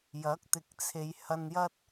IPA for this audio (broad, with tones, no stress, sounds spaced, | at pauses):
j ɐ˨˥ k̚ t̪ ɪ˨ k̚ t͡sʰ e˨˧ j h ɐ˧ n j ɐ˥ t̚